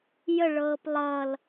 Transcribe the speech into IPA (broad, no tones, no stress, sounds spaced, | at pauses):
j ə ɭ ɤː p lˠ ʌ l